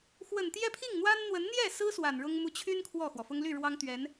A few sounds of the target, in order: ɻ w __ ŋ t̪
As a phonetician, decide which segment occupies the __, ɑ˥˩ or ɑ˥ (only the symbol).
ɑ˥